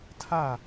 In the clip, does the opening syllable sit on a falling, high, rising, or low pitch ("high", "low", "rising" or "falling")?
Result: falling